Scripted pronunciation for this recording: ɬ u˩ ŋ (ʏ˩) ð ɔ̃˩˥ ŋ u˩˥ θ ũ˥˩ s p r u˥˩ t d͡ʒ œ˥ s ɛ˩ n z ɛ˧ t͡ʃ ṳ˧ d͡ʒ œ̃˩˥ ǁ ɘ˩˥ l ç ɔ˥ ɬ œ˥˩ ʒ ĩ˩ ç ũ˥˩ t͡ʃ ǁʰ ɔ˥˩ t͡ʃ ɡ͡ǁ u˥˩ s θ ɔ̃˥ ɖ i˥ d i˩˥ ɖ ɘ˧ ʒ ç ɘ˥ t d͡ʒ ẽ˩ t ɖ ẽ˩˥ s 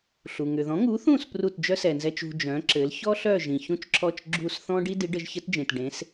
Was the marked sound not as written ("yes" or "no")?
no